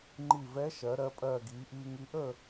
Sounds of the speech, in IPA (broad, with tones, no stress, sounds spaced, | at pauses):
ŋ͡ǃ i˧˩ v ɛ˧˥ ʃ ɜ˩˧ ɾ ɜ˧ pʼ ɜː˧˩ ɡ iː˩˧ ʔ iː˧ ŋ i˧˥ ʔ əː˥˨